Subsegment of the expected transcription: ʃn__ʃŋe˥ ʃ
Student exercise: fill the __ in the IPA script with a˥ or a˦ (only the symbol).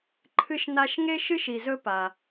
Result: a˦